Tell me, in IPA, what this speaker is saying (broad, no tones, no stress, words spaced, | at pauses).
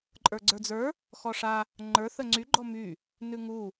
ǃʼə˞ɡ͡ǀə˞d͡zə˞ | xɔʂa | ŋ͡ǃə˞ θəŋ͡ǀy ɡ͡ǃɔmy | nʉŋu